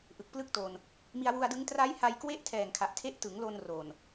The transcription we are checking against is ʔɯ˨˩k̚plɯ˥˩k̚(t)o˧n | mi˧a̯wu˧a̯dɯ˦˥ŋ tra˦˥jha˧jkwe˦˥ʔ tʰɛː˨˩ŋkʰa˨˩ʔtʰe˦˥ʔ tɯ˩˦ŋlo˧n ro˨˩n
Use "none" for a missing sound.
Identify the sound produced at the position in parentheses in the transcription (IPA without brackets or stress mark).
t